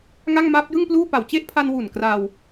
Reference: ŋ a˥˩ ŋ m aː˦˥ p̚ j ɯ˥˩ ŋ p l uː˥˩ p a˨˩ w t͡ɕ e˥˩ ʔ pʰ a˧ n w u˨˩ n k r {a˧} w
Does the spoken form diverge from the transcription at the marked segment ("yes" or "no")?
no